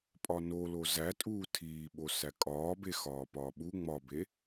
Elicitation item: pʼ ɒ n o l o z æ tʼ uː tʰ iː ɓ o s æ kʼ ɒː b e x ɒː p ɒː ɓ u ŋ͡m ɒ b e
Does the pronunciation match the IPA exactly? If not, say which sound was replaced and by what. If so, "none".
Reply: none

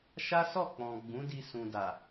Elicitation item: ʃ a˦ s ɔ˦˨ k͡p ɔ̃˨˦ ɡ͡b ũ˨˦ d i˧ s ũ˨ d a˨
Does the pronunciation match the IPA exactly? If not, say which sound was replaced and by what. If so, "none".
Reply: ɔ̃˨˦ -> ɔ̃˨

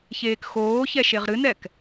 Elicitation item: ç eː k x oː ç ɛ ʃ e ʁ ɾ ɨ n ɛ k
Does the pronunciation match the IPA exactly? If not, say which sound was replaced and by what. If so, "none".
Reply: none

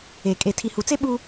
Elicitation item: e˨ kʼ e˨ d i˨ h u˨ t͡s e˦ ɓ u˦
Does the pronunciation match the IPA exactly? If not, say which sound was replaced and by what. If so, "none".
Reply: d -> tʰ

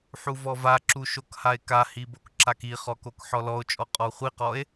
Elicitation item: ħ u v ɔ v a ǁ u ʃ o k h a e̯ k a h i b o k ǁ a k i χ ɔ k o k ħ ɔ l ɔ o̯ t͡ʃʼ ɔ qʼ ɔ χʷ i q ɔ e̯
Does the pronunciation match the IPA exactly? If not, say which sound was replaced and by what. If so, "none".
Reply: none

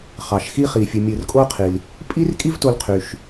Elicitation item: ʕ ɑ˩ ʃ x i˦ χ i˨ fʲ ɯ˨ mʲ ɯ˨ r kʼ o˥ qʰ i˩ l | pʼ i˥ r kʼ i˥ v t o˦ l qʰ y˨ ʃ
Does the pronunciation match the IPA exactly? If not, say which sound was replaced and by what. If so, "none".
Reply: ʕ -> χ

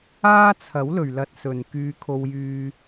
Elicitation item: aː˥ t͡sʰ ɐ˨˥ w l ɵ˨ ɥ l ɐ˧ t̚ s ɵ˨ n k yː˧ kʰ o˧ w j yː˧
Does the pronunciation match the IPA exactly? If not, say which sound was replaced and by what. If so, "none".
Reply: none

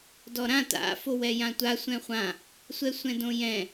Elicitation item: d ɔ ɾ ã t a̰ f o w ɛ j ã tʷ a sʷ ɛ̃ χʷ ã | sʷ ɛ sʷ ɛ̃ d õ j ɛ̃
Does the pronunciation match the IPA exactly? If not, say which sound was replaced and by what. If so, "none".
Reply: none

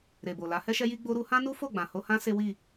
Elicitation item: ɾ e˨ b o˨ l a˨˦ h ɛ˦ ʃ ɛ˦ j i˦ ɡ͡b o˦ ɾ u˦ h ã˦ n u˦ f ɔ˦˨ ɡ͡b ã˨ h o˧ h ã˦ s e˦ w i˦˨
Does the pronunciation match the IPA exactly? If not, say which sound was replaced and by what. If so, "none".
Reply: ɔ˦˨ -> o˦˨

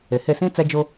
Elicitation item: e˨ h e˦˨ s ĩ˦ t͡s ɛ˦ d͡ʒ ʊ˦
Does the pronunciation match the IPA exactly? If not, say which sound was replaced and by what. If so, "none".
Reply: none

